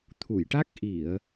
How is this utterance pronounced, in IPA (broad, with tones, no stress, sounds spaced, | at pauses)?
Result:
t̪ʰ u˨˩˨ j ʈ a˦˥ k̚ ʔ i˨˩˨ ə̯